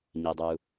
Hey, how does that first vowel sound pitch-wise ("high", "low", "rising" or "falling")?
low